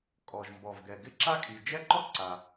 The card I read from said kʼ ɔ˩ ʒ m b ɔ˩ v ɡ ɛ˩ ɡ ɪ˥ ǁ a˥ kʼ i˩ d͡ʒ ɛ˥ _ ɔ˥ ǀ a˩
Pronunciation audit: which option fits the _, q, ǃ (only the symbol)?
ǃ